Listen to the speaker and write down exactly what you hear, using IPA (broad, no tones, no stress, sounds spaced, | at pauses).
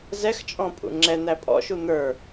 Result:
z ɛ x t͡ʃʼ ɔ̃ pʼ ṵ ŋ͡ǁ ɛ n̪ æ pʼ ɔ̰ ʃ u n̪ ə˞